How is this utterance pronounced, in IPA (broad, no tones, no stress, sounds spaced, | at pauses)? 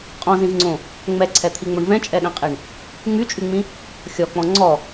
qʼ ɔ̃ z ĩ v ŋ͡ǀ õ | ŋ͡m ɛ ǀʰ ɛ t̪ʰ i ŋ͡m o ɳ v ɛ̃ t͡ʃʼ ɛ ɗ ɛ̃ qʼ i ɳ | ŋ͡m y t͡ʃʼ y ŋ͡m ĩ | xʲ ɔ k͡p ɔ̃ ŋ͡ǀ ɔ